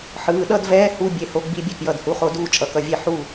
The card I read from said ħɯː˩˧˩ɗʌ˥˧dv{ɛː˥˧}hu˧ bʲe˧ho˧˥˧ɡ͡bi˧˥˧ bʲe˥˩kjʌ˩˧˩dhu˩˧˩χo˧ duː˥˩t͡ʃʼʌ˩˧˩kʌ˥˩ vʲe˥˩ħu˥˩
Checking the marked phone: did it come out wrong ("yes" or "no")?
yes